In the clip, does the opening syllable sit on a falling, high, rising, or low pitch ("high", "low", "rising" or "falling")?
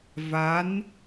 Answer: rising